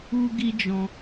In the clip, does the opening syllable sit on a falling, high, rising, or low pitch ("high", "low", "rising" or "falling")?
high